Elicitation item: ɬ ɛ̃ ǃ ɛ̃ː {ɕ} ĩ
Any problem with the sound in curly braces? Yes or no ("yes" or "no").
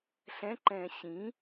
no